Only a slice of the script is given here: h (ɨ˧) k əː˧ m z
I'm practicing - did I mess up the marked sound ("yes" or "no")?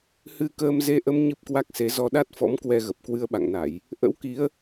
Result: no